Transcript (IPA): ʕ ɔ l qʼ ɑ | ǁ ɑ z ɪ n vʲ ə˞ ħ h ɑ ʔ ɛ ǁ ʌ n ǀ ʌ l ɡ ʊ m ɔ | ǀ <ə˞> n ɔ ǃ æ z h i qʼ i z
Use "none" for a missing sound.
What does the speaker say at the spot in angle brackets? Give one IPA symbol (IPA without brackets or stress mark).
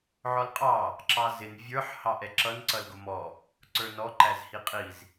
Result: ə˞